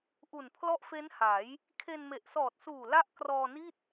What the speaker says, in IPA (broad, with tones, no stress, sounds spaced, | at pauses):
ʔ u˨˩ n pʰ l ɔ˦˥ ʔ f e˦˥ n h a˩˦ j | kʰ e˧ n m e˨˩ ʔ s ɔː˨˩ t̚ s uː˨˩ l a˦˥ ʔ k r ɔː˧ n i˥˩ t̚